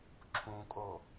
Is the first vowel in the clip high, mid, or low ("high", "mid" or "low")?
high